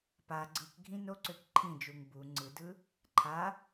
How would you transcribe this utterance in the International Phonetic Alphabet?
pa ɡ͡ǀɯkɡʱĩ noǀøk ǃʰĩd͡ʒuŋ bu ŋ͡ǀɯdɯ | ǃʰa

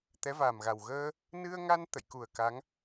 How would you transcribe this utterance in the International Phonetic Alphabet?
t̪ɛ˨˦va˨˩mɣa˨˩w ɣəː˧ | nɨ˧ə̯ŋa˧n t̪ə̰˧˨jku˨˩ə̯ka˨˦ŋ

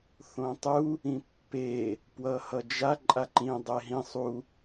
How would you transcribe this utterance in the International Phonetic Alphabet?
θõtˤu | ĩpːe | pwʌhʌd͡ʒa ǃʼaǃĩ dˤeɦĩ sˤu

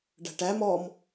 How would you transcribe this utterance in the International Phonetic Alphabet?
ɖæ̤ʈæ mɔm

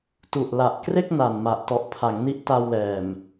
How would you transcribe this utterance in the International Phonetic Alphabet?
tu˨˩ʔla˨˩ʔkre˥˩k̚ na˨˩n ma˨˩ʔ tɔ˨˩ʔpʰa˩˦ŋ ni˦˥ʔta˧wlɛː˨˩m

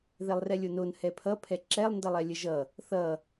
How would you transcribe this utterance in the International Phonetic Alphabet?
ðɛlˠrɛlʲonon hɛpʰʌpʰɛ ǁɛlˠndʌlˠɛ lʲəʒʌ | θʌ

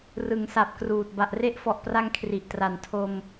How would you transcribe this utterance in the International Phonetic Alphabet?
rɯ˩˦ŋsa˨˩p̚kruː˨˩t̚ ba˨˩ʔre˦˥ʔfɔ˨˩ʔpra˧ŋ kʰri˨˩ʔtra˨˩n tʰo˧m

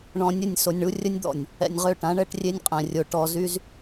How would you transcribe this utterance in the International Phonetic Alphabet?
ɳɔ̃˨ nʲə˦˨nʲ so˨nʲɳu˦ rʲə˦nʲd̪ɔ̰˨nʲ | ɛ̰˨nʲʁø˦˨ʈã˨˦ ɳɛ˦ʈrʲe˦nʲqʼɛ̃˨ rʲo˨ ʈɔ˨zy˦z

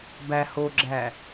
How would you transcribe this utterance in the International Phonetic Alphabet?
bæ hoɡ͡ǁæ

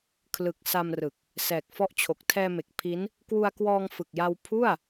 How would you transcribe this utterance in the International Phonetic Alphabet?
kʰlɯ˨˩k̚ sa˧mrɯ˨˩k̚ | sɛː˨˩k̚fɔ˦˥ʔt͡ɕʰo˨˩k̚ tʰɛː˧me˨˩k̚ pʰi˦˥n | kwu˧a̯kwɔː˧ŋfɯ˨˩k̚ja˧w pʰu˥˩a̯

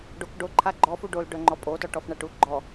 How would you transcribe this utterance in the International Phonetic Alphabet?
ɖokɖo ǃʰaɡ͡ǃɔ fuɖol ɖœŋ͡ǃɔpʼotɔ ʈɔfɳaʈuɡ͡ǃɔ

